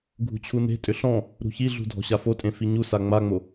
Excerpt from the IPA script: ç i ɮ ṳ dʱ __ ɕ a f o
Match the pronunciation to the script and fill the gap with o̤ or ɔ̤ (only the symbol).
ɔ̤